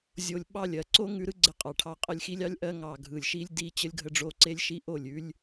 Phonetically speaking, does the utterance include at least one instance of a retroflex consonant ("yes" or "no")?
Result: yes